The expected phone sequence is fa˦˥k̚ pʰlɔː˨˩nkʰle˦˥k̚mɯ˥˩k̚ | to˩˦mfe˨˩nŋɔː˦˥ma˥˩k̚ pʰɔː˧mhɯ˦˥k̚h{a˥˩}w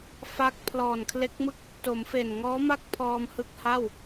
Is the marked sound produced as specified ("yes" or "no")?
yes